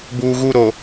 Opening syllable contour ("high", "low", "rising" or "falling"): low